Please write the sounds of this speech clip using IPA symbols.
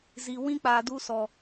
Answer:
z i˨ w ĩ˦ k͡p a˨ d u˦ s ɔ˨

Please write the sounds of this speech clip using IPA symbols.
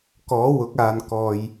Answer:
k ɔː˨˥ w ʊ˨˥ k̚ aː˨ n k ɔː˨ j

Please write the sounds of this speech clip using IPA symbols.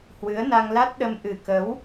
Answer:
h w ɨ˨˦ ə̯ n a˧ ŋ l a˦˥ t̚ ɗ ə˧ m ʔ ɨ˨˩ k ə˨˦ w

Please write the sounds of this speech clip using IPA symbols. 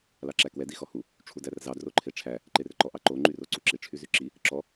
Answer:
l ɑ ǁ æ k w ɛ d i x ɔ h u | ʈ͡ʂʰ u d æ r z ɑ d r o ǃʰ e ʈ͡ʂʰ æ | ǃ e r ǃ ɔ ʔ ɑ ǃ o ŋ͡ǃ y r o ǀ u ǁ i ʈ͡ʂʰ y z y ǁ i | ǁ ɔ

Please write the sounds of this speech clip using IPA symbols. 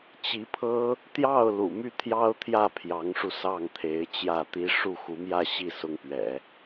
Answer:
t͡ɕ i˧˥ pʰ ɤ˥ | t̪ j ɑ˥˩ ʊ̯ l ṵ˨˩ m y˥˩ t̪ʰ j ɑ˥ ʊ̯ t̪ʰ j ä˥˩ pʰ j ɑ˧˥ ŋ ʂ u˧ s ɑ˥˩ ŋ t̪ʰ e˧˥ ɪ̯ t͡ɕ j ä˥˩ t̪ i˥ ʂ u˥˩ x u˧˥ m j ä˥˧ ɕ i˥˩ s ʊ˥ ŋ p ɥ ɛ̰˨˩˦

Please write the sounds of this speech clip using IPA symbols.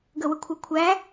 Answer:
ɡ ə w ə kʷʰ a kʷʰ æ

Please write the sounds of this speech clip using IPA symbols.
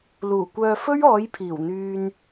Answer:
l uː˨˩ kʷ œː˧ f ɵ˥ ɥ ɔː˨˥ j pʰ iː˨˩ w n̪ yː˧ n

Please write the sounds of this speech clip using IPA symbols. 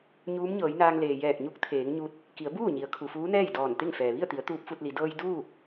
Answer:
ɲ uː˧˥ m ɲ ɤː˩˧ j n aː˧ ŋ l eː˩ j ɛː˧˩ k̚ ɲ u˧˥ k̚ t̪ʰ eː˩˧ ŋ ɲ u˧ t̚ | k i˩˧ ə̯ b uː˥˨ ɲ i˩˧ ə̯ kʰ u˩ f uː˧˥ n ɛː˥˨ j d ɔː˧˩ n t̪ e˥˨ ŋ f ɛː˩ ʋ i˥˨ ə̯ t̪ i˩˧ ə̯ t̪ uː˧˥ p̚ f u˧ t̚ l i˩˧ d ɤː˧ j d uː˥˨ k̚

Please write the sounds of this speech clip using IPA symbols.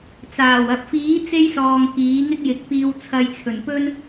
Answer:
t͡s aː˨˩ w ɐ˨ p̚ f iː˨˥ t͡s e˥ j s ɔː˨ ŋ k iː˨˥ ŋ ɪ˥ k̚ j ɪ˨˥ k̚ p iː˧ w t͡sʰ ɐ˧ j t͡sʰ ɵ˨˩ n p ɵ˥ n

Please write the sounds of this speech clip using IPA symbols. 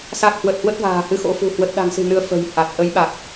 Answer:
s a˨˩ k̚ h w ə˨˩ t̚ h w ə˦˥ t̚ v a̤ː˨˩ h ɨ˧ x o̰˧˥ f ṳ˨˩ h w ə˨˩ t̚ ɗ a̤˨˩ ŋ s ɨ̤˨˩ n ɨ˧ ə̯ f ə̤˨˩ j h a˨˩ t̚ ʔ ə˨˦ j ɓ a˨˩ k̚

